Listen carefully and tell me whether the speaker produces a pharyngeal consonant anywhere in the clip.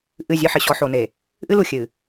yes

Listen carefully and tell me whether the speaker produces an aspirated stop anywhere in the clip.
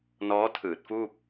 yes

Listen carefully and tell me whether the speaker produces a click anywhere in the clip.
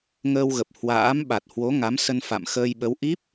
no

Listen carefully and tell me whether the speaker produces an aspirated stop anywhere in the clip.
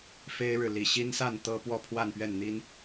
yes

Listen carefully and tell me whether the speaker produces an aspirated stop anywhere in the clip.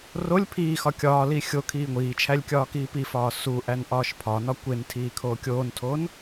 yes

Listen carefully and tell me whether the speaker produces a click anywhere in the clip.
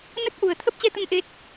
no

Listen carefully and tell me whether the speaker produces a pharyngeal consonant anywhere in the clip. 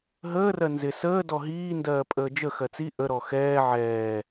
yes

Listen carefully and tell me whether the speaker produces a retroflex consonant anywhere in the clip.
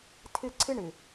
yes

